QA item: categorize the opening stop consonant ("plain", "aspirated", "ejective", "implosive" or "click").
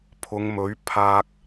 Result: aspirated